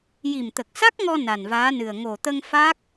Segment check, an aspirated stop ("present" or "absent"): absent